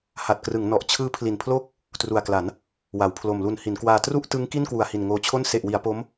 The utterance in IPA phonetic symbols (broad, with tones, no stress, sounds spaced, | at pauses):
h a˨˩ t̚ k r ɯ˩˦ ŋ n ɔ˨˩ ʔ t͡ɕʰ ɯː˦˥ pʰ l i˨˩ n pʰ l oː˥˩ k̚ | t r u˨˩ a̯ k l a˩˦ n | w a˩˦ w pʰ l o˨˩ m l u˨˩ n h i˩˦ n k w aː˧ t r u˥˩ ʔ t ɯ˦˥ ŋ k i˥˩ n k w u˨˩ a̯ h i˨˩ n ŋ oː˧ t͡ɕʰ o˥˩ n s e˨˩ ʔ w i˩˦ a̯ p o˦˥ m